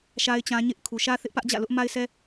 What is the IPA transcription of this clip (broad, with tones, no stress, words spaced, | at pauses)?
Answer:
ʃa˦ɪ̯t͡ɕã˦ ɲɪ˦ʔ kʰu˨ʃä˦θɪ˦ʔ pä˦ʔd͡ʑä̰˦˨lʊ˦ʔ ma˦ɪ̯sʰɛ˦